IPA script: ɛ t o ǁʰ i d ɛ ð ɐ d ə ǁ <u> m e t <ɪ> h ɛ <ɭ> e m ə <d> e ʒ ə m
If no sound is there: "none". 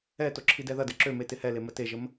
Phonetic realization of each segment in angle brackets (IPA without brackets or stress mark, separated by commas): ø, ɪ, l, t